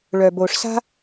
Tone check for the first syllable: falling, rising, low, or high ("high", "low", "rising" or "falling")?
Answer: low